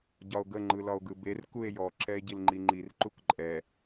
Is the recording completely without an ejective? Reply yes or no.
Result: no